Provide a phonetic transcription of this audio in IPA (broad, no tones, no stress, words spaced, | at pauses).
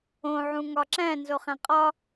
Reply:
õ ʕũŋɒǁæ̃ nzoχæ̃qʼɒ